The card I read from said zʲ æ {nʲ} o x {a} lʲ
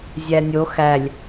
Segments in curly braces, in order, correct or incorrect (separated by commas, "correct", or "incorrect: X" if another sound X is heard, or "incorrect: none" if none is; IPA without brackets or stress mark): correct, incorrect: æ